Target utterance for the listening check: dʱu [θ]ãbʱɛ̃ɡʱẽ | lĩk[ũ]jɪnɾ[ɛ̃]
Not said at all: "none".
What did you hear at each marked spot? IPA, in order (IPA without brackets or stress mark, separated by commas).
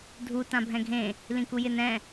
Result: t, u, ɛ̃